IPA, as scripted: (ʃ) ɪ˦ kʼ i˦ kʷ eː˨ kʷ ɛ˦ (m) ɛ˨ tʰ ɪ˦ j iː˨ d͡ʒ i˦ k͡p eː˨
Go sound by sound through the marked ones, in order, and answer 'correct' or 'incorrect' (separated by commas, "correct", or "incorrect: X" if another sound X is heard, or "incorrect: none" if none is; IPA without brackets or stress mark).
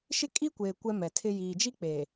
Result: correct, correct